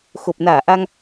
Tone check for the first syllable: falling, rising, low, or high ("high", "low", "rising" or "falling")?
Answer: low